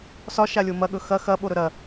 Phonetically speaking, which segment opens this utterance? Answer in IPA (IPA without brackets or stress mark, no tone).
s